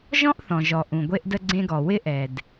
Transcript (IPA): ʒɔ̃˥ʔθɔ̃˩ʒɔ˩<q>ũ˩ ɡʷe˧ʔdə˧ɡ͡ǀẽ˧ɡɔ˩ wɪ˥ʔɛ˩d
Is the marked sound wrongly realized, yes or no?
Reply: yes